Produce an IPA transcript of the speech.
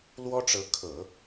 l w ɔ˥ ʈ͡ʂ ɤ˧˥ kʰ ɤ˨˩˦

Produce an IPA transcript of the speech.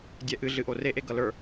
dʲ ɛ ʔ ɨ ɮ ɨ ʔ o r e ʔ e ɡ ʌ l ə˞

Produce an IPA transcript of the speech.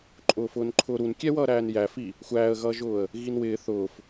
ǃʼ ʊː f ʊː n ǃʰ ʊː ɾ u n kʲ ɛ w ʌː ɾ æː n j æ f i | xʷ æː ə̯ ɣ ʌː ʒ ʊː ə̯ | ɣ i n w ɪː θ ʊː f

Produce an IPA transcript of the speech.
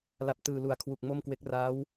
l a˨˩ p̚ t ɯː˨˩ l u˨˩ a̯ kʰ w u˨˩ k̚ m o˥˩ m k w e˦˥ k̚ r aː˦˥ w

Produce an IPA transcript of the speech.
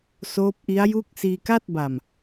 s oː˦˥ p̚ ʔ i˦˥ a̯ j u˥˩ k̚ s iː˧ k a˥˩ t̚ b a˨˩ m

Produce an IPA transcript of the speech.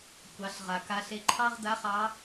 kʷ ɑ˩˧ ɬ ʁ a˩ k a˧ ɬ e˧ ǃʰ ɑ˥ ʁ d a˧˥ χ ɑ˧˥

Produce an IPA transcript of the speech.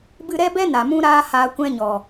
b ɨ˧ ɾ ɛ˦ b ɛ˦ n a˨ m ũ˦ ɾ aː˦ h aː˧ kʷ ɛ̃˦ ɲ ɔ˨

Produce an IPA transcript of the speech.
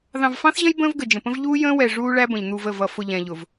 ð ɑ̃˨ v f ɑ̃˦ θ ʑ ə̃˦ j b ə̃ː˦ v ɡ ə˨ d͡ʒ ə̃˨ p ə̃˦ v ʎ uː˦ j ə̃ː˦ w ɛ˨ ʐ uː˦ ɭ æ˦ b ə̃˨ ʎ n̪ u˨ v ə˦˨ v ʌ˨ f ʊ˨ ʎ ɛ̃˨ ʎ ʊ˨ v

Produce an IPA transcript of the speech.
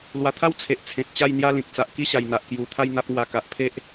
l w a˨˩ t̪ʰ a˦ w t͡sʰ e˨ ʔ t͡sʰ ẽ˨ t̚ t͡ɕ a˥˧ j n̪ j a˦ l ĩ˨ k̚ t͡s a˨ ʔ k i˦ ɕ a˨˩ j n̪ a˨ ʔ k j u˨˩ t̪ʰ a˥˧ j n̪ a˦ p̚ ŋ w a˧ k a˨ ʔ pʰ e˦ ʔ

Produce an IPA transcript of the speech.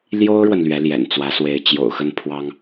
l j o˥ ʊ̯ ɻ w ə˨ n l ɥ ɛ˧˥ l j ɛ̰˨˩ n t͡s w ä˧˥ s w e˧˥ ɪ̯ t͡ɕ j o̰˨˩ ʊ̯ x ə˥˩ n pʰ w ɑ˥ ŋ

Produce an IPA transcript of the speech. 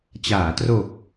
t͡ɕ aː˩˦ t r o˨˩ k̚

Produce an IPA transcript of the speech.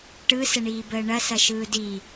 ʈ ɯ s ə ɳ iː b əː ɳ ɐ s ɐ ʃ ɯː d i

